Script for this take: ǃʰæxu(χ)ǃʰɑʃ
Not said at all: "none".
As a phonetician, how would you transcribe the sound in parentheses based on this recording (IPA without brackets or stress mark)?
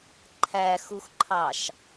x